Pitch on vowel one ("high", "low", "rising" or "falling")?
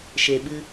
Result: low